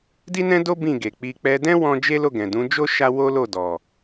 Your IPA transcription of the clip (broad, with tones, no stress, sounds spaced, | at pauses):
d i˦ n ɛ̃˦ d o˦ b ĩ˦˨ ɡ e˨ k͡p i˧ k͡p ɛ˧ d ɛ̃˦ w ɔ̃˦ d͡ʒ e˦ l o˦˨ ɡ ɛ̃˨ d ũ˨˦ d͡ʒ o˦ ʃ a˦ w o˦ l o˦˨ d ɔ˨